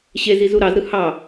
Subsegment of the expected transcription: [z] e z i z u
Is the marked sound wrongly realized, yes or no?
yes